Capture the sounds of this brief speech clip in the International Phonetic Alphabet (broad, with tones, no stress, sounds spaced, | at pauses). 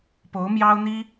p o˧˥ ʊ̯ m j ɑ˥ ʊ̯ n̪ i˥